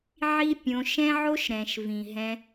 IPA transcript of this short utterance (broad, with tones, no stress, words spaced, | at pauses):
ʕi˦ pʲõ˧ ʃɛ̃˦ʕo˦ʃ ɾɛ̃˨ʃvĩ˨ ɦɛ̃˧